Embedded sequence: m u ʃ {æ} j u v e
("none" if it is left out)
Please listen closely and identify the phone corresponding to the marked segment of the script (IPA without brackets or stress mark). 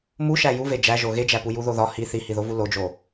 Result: æ